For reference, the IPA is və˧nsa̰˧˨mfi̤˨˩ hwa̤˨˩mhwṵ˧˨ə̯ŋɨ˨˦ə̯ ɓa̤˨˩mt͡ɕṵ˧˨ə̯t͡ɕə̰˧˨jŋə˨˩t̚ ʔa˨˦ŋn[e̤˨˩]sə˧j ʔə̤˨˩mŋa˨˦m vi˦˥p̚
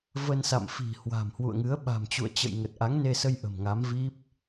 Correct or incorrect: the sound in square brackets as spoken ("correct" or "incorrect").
incorrect